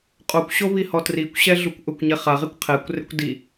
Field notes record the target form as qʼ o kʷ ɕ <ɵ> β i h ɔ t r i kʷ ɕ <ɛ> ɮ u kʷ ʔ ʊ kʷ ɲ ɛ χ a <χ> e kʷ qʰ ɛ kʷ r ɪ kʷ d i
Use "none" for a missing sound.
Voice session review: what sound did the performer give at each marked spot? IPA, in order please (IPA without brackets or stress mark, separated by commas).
o, ɛ, ʁ